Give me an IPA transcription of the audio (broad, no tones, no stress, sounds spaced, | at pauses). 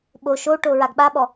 ɓ o ʃ o ʈ o ɹ a ɡ ɓ a ɓ ɔ